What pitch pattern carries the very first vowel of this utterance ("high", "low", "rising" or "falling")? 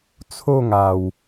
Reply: falling